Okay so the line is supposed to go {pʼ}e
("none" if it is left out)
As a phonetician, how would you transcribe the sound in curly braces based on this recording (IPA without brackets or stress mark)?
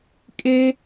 kʼ